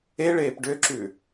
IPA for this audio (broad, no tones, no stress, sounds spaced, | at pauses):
e ɭ eː p ɖ ø ǁ ʉ